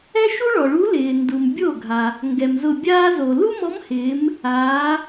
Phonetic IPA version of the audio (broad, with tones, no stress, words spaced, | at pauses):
ɛ˥ʃu˥ɭɔ˩ɭu˧˥ lɪː˩ndu˩m bʲo˥˩ɡʱa˩ | ŋɡɛ˩mzʊ˧˩bʲaː˥zo˩ lu˥mɔ˧˥mhɪː˩˧m | aː˩˧